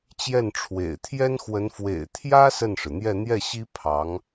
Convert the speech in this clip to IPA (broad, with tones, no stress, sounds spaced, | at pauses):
t͡ɕ j ɛ˥˩ n ʈ͡ʂʰ w ḛ˨˩ ɪ̯ t̪ʰ j ɛ˥ n x w ə˧˥ n f w ḛ˨˩ ɪ̯ t̪ʰ j ä˥ s ə˥˩ n ʂ ɻ̩˩ n̪ j ɛ˥˧ n̪ j ɛ˥˩ ɕ i˥ pʰ ɑ˧˥ ŋ